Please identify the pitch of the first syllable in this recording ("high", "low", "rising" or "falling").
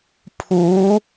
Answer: rising